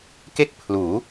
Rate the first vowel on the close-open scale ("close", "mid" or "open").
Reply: mid